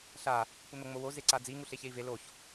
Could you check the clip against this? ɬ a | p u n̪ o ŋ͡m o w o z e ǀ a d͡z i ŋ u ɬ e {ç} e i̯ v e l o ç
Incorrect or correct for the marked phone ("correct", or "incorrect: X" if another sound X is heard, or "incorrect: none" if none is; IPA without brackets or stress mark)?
correct